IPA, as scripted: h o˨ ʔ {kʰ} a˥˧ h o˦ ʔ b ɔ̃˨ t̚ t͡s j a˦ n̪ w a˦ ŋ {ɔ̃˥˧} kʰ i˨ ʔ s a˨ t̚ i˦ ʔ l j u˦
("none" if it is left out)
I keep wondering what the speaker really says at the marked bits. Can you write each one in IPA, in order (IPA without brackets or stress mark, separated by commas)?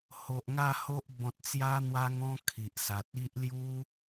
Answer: ŋ, ɔ̃˦